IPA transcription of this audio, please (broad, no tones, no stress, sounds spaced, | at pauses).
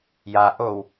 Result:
j a ʔ o w